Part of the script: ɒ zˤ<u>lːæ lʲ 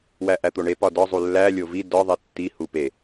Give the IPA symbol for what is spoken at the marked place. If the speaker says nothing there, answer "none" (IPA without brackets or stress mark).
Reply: u